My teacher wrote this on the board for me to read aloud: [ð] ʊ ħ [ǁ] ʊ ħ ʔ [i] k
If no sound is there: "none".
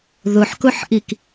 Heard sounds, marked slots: ð, k, i

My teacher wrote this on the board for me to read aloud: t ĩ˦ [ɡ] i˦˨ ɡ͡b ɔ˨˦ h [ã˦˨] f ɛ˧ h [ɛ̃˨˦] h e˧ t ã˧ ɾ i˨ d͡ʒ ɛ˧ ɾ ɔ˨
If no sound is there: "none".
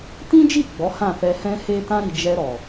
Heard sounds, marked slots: d͡ʒ, ã˦˨, ɛ̃˧

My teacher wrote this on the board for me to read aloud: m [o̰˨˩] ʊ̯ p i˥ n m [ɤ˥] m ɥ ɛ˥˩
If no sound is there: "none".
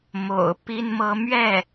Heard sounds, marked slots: o̰˨˩, ɤ˥

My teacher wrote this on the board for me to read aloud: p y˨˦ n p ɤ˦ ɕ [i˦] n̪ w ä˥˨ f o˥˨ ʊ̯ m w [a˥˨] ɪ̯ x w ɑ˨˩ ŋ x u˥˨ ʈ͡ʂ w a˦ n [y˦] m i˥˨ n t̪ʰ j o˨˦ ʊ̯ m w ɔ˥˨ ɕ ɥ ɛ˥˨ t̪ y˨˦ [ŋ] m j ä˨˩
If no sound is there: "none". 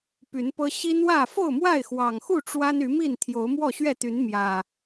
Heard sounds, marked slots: i˦, a˥˨, y˨˦, n

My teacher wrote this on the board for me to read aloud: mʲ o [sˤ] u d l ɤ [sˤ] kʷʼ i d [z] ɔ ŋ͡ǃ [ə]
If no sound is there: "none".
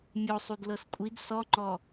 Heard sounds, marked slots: sˤ, s, s, ɔ

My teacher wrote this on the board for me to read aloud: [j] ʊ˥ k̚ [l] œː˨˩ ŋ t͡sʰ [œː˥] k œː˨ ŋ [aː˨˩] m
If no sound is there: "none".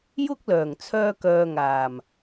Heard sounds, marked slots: j, l, œː˧, aː˨˩

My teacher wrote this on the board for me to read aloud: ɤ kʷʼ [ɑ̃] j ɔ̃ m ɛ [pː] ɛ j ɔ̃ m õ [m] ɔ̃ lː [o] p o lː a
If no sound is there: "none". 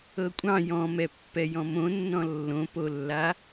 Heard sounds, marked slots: ɑ̃, pː, nː, õ

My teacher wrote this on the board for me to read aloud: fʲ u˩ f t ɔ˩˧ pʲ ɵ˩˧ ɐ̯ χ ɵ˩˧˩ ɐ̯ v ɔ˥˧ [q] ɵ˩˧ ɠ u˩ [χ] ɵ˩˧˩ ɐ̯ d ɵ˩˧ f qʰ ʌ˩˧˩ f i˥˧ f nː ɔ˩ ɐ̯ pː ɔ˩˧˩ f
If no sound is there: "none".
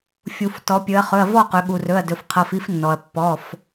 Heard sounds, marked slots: q, r

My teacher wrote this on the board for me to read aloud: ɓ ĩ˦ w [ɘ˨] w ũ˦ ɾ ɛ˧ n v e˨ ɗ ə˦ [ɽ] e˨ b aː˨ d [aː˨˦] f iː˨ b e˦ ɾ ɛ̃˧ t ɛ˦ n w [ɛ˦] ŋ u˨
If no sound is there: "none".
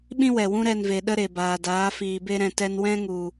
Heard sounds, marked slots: ɛ˨, ɾ, aː˨˦, ɛ̃˦

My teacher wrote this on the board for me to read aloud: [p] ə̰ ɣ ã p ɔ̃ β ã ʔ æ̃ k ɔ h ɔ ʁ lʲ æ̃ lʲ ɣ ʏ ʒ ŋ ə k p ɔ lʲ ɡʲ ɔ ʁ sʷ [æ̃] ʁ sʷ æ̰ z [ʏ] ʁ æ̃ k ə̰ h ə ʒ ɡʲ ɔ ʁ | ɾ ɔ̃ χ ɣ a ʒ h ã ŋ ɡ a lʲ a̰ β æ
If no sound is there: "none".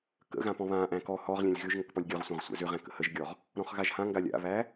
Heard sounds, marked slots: k, ã, ʏ

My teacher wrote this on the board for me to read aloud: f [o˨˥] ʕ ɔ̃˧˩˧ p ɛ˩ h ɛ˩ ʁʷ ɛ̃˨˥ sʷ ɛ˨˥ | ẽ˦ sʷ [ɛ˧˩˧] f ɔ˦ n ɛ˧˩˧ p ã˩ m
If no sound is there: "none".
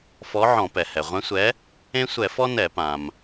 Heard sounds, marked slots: ɔ˨˥, ɛ˧˩˧

